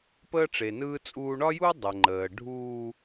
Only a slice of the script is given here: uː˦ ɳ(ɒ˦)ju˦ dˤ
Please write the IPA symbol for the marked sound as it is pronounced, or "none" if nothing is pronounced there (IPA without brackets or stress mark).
ɒ˦